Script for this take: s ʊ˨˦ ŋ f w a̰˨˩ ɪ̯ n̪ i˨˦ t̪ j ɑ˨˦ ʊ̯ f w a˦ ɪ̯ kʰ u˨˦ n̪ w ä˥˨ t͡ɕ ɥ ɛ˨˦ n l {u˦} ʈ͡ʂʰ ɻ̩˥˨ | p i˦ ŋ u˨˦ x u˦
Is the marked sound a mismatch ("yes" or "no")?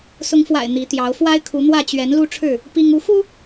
no